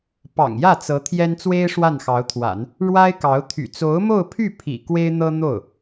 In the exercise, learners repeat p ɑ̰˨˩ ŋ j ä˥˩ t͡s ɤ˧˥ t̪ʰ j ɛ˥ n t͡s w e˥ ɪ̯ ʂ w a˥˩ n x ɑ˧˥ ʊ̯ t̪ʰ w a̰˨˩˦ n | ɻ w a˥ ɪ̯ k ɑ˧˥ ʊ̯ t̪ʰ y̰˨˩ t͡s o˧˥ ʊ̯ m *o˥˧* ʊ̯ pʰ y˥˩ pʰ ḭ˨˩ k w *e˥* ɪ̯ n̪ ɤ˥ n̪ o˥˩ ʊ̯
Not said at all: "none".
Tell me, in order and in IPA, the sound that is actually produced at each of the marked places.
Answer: o˥˧, e˥

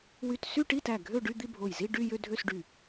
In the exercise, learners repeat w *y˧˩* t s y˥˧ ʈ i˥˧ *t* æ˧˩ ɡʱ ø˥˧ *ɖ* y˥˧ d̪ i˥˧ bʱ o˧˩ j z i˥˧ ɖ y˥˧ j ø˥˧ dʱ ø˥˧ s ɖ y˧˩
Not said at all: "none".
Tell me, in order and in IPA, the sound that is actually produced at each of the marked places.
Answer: y˧˩, t, ɖ

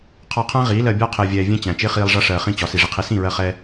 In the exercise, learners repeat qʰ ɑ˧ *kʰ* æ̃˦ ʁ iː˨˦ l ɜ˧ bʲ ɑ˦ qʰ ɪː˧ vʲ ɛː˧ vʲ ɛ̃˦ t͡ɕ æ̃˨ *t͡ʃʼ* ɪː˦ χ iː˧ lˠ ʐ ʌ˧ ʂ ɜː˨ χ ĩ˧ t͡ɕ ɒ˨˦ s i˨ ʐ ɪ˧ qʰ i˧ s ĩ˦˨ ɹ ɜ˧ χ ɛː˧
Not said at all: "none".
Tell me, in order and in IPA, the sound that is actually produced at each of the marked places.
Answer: qʰ, t͡ʃ

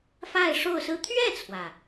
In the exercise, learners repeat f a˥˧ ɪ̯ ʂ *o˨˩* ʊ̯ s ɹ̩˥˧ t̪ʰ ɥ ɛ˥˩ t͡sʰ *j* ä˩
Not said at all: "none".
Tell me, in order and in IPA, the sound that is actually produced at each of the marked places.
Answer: o˥˧, w

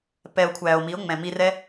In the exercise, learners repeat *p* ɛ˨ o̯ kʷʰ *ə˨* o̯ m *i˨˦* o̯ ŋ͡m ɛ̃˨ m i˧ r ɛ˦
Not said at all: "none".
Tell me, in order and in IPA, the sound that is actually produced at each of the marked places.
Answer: p, æ˨, i˨˦

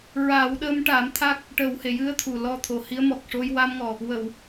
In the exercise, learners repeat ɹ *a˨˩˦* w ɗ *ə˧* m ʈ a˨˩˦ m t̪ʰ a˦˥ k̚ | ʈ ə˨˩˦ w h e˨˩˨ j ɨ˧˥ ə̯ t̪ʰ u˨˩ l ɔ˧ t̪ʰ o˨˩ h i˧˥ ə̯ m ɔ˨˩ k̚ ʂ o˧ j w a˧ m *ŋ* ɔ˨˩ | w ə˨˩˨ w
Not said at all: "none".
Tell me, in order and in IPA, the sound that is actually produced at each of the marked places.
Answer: a˨˩˦, ə˧, ŋ

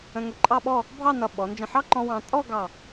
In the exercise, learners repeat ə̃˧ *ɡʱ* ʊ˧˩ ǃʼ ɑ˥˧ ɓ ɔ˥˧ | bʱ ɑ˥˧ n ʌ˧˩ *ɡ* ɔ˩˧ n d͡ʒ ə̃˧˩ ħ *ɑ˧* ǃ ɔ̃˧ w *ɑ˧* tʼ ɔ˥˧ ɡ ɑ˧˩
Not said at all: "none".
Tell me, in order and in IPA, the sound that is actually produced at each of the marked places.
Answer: ŋ, ɓ, ɑ˥, ɑ̃˧

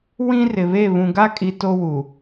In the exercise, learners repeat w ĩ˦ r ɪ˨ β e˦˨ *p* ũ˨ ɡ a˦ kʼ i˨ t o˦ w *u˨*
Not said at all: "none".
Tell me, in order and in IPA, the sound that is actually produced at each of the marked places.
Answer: β, u˨

